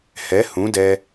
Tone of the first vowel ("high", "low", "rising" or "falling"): rising